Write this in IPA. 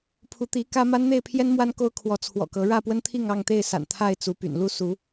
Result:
pʰ u˨˦ t̪ i˨˦ k ä˦ m a˦ n n̪ e˥˨ ɪ̯ pʰ j ɛ˦ n m w a˦ n k o˦ ʊ̯ kʰ w ɔ˨˦ t͡sʰ w ɔ̰˨˩ k ɤ˨˦ ɻ ä˥˨ p w ə˦ n t̪ʰ i˥˨ ŋ ɑ˥˨ ŋ t̪ e˥˨ ɪ̯ s a̰˨˩ n t̪ʰ a˥˨ ɪ̯ t͡s u˨˦ p y̰˨˩ n l u˥˨ s u˨˦

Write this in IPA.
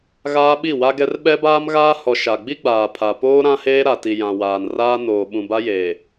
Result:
ɣ aː˦ ɓ i˦˨ w a˦ ɡ ɛ˦ r ɓ ɛ˦ b aː˦ m ɣ aː˦ h ɔ˨ ʃ a˨ ɡ͡b i˦ ɡ͡b aː˨ pʰ a˨ p oː˦ ɾ ã˦ h eː˦ ɾ a˨ t i˨ j ã˨ w aː˨ n r aː˦ n oː˨ ɓ ũ˨ b a˦ j eː˨

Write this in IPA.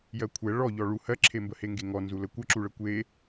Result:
j ɜ kʷʰ ɛ ɭ ɔ ʎ ɔ ɭ u h ɜ ǁʰ e m b ə h e ŋ ɡ e ŋ ɔ n z u l ə kʷ ə ǁ u ɭ ə kʷ e

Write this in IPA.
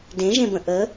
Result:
d ẽ ʒ ẽ b ə̃ ʔ ə

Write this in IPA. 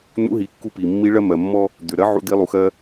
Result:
n̪ ṵ˧˥ ɦ i˩˧ kː u˧ p i˩ mː i˧˥ ɭ ɜ˥ m ɜ˩ mː ɔ˥ | d̪ ʏ˩ ɾ ɜ˧˥ ʕ ṵ˧˥ d̪ i˧˥ lˠ u˩ x ɜ˥

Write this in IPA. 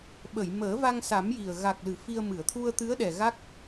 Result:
ɓ ə˨˩˨ j m əː˨˩˦ v a˧ ŋ s a˨˩˦ m j i˨˩ ə̯ ɣ a˨˩ k̚ l ɨ˨˩˨ f i˧ ə̯ m ɨ˨˩˨ ə̯ t̪ʰ u˧ ə̯ t̪ ɨ˧˥ ə̯ ɗ ɛ˨˩ ɣ a˦˥ k̚

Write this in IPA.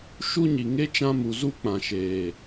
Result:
ʃ u˦ ɲ i˨ ŋ e˦ t͡ʃ ã˧ m u˨ z u˦˨ k͡p ã˨ ʃ eː˨

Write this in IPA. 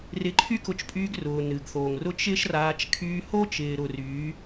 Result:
r ɪ˨˦ ǃʰ y˦ k ʊ˧ t͡ʃ pʼ yː˧ ɡ r ʊː˨ n ɨ˨ ɡ θ o˨ ŋ r ʊ˦ t͡ʃ ɪː˦ ʃ r aː˧ t͡ʃ kʰ yː˧ h o˦ t͡ʃ ɪː˨ ɾ ʊ˨ r yː˨˦

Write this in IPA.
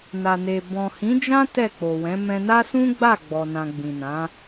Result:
n a˨ n e˨ b ɔ̃˨ h ĩ˨˦ d͡ʒ ã˦ t ɛ˦˨ k͡p o˨ w ɛ̃˨˦ m ɛ̃˧ n a˦ s ũ˦ ɡ͡b a˦˨ ɡ͡b ɔ˨ n ã˨ ɡ͡b ĩ˨ n ã˨˦

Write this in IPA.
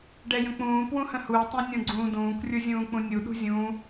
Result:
ɖ ɛ j ə̃ k͡p ũː p w ũ h ə̃ h u i̯ tˤ ɛ̃ nʲ ũ ɡ͡ǀ ũː d ũː k rʲ u zʲ ũː k͡p ũ nʲ u ɗ ṳ zʲ ũː

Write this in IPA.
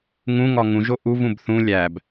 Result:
ŋ ũ ŋ ɒ ŋ ũ ʒ o ʔ u v ũ b θ ũ lʲ æ b

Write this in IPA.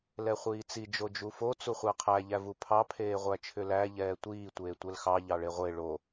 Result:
l ɛ χʷ iː t͡s i d͡ʒ o d͡ʒ u f o t͡s u χʷ æ qʰ æ ʎ æ v u pʰ ɑ pʰ eː ʁʷ æ t͡ʃʰ ʏ l æ ʎ ɛː tʷ iː tʷ eː tʷ ɛ l x ɑ ʎ ɑ ɭ e ʁʷ e ɭ o

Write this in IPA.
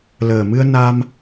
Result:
l əː˨˩ m ɨ˧ ə̯ n a˧ m

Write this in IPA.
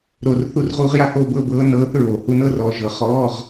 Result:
ɾ o˨˩ r θ u˧ r ʁ uː˧ ʁ j a˧˥ h oː˧ b ɤ˥˧ b ɤː˧˥ n ɤː˧˥ θ ɹ oː˨˩ h u˧˥ n ɤ˧˥˧ r ɔː˧ ʒ ɤ˧ χ ɔː˧˥˧ ʁ

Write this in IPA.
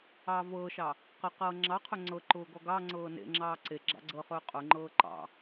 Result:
ɑː v ɤː ʃ ɑ | q ə q ɤː ŋ͡ǁ ɑ qʰ ɵ ŋ͡ǀ ɤ ǃ ʊː ɡ ɔ ɡ ɑ ŋ͡ǀ ɤː n ḛ ŋ͡ǁ ɑː ǀ e ɡ͡ǁ ɑ̰ ɡ͡ǀ ɤ χ ɵː qʼ ʊ ŋ͡ǃ ɤː ǃ ɑ̰

